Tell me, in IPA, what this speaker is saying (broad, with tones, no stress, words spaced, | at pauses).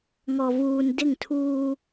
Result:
ŋɔ˨vuː˨n dɪ˦˨ŋtʰuː˦